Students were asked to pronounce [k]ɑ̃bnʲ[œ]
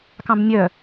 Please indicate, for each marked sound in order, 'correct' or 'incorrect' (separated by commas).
correct, correct